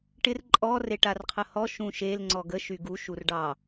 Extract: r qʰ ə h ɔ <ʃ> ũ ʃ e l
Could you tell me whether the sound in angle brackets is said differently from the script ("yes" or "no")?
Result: no